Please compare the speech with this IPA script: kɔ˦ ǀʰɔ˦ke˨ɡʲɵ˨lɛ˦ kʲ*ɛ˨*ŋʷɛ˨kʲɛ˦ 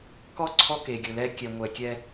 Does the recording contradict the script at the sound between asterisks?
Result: no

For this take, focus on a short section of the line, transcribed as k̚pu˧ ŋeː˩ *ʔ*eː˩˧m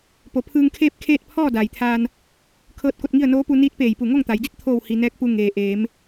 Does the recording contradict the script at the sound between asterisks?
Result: no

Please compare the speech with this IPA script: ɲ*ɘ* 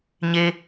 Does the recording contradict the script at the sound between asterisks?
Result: yes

